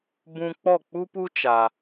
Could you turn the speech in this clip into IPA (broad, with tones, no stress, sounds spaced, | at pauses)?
b ũ˧ k͡p ɔ˦˨ k͡p u˦ p u˦ t͡ʃ a˧